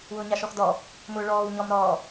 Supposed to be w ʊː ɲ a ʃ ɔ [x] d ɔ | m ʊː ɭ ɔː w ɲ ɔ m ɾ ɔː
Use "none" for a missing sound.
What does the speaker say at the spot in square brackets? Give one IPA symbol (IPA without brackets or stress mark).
x